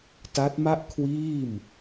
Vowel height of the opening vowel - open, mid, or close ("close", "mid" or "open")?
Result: open